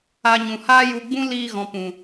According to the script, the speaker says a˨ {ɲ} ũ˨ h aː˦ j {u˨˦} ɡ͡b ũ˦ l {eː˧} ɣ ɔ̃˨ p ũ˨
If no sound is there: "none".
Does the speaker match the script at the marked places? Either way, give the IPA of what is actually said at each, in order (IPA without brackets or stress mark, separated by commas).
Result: ɲ, u˧, iː˧